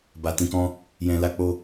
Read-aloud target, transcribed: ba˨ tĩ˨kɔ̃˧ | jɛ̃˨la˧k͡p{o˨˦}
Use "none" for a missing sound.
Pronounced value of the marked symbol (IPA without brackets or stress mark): o˧